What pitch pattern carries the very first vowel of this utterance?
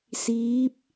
rising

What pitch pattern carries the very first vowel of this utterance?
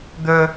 high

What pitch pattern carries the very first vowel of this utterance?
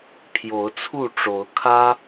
rising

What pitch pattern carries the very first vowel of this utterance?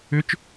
rising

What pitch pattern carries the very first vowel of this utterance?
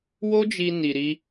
high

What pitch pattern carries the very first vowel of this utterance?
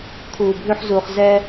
low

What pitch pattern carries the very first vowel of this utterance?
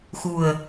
low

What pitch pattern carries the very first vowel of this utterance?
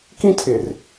high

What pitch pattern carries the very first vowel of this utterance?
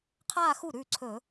falling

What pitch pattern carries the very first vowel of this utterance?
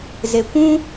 low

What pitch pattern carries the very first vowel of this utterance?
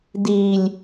low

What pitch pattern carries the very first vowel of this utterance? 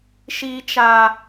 high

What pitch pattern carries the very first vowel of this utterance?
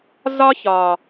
high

